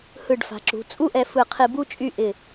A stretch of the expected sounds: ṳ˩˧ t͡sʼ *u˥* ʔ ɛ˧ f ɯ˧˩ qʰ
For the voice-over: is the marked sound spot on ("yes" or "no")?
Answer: yes